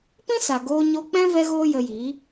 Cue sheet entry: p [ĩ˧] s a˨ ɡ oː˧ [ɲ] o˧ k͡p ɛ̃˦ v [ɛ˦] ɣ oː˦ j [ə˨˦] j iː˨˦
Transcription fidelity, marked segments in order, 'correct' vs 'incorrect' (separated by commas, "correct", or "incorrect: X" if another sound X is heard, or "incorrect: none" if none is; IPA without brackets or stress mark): incorrect: ĩ˦, correct, correct, incorrect: ə˧